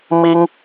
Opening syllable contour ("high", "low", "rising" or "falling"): high